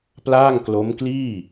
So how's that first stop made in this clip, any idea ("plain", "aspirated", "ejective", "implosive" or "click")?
plain